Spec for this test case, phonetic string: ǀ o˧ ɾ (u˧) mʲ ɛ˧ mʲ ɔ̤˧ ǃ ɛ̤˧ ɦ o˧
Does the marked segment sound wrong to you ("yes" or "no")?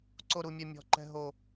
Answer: no